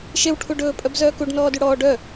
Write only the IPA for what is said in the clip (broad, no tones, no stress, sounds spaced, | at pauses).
ʃ e w ʈʰ u ɖ ɵː pʼ œ b z œː k u ɖ n ɔː d y ɽ ɔː ɖ œ